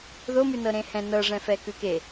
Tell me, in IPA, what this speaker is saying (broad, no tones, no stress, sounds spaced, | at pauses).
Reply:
ð o m ʉ n ɤ ɾ ẽ h ɛ̃ n ɤ ʐ ɛ̃ f ɛ k ʉ k e